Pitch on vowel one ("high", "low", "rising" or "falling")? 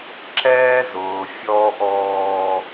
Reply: high